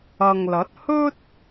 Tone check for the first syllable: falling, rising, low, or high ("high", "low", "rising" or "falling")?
low